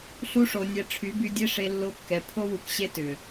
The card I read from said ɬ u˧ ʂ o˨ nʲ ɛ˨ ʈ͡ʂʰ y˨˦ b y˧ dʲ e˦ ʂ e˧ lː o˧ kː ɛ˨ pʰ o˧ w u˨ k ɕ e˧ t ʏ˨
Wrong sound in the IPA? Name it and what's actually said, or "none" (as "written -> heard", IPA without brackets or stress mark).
none